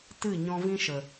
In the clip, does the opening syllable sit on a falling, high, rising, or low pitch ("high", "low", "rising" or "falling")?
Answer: falling